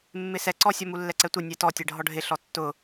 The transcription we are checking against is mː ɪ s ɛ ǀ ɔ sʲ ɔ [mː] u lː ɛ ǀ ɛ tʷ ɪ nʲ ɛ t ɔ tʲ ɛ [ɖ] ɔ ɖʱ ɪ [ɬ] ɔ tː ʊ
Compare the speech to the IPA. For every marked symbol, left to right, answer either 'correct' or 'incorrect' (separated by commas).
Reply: incorrect, incorrect, correct